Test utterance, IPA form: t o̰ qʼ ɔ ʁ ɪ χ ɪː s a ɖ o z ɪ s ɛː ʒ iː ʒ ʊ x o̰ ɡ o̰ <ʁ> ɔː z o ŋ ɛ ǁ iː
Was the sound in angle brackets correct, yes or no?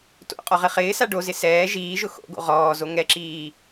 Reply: yes